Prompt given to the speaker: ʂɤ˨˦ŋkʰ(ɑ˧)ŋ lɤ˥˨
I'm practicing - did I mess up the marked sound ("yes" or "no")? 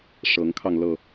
no